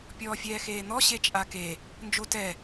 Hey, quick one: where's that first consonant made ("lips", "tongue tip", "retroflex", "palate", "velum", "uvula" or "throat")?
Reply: lips